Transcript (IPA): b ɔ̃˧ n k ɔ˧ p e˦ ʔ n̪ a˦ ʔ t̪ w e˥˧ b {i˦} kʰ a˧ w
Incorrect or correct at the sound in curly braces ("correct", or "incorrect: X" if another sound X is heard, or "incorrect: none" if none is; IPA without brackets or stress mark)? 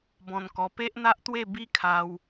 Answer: correct